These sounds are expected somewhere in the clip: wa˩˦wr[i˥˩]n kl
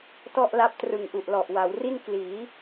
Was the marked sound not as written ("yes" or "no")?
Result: no